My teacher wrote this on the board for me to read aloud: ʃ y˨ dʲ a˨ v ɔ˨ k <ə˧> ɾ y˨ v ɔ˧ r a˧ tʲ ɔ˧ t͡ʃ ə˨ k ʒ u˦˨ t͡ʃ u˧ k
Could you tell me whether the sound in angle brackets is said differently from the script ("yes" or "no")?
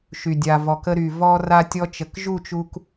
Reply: no